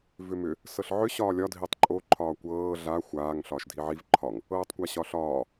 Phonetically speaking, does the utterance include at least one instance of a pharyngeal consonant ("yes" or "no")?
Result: yes